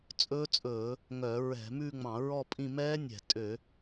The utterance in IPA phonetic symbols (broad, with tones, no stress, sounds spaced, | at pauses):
t͡sʼ ɵː˦˥ t͡sʼ ɵː˧˩˧ | ŋ œ˧˩˧ ɹ ɛ̤˧˩˧ m ʉ˥˧ ŋ͡m ɑ̃˧˩˧ ɹ ɔ˥˧ pʼ ĩ˥˧ m ɛː˦˥ nʲ ɛ̤˧˩˧ tʼ ø˧˩˧